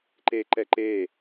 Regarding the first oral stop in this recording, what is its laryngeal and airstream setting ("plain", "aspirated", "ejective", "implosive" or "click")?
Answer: click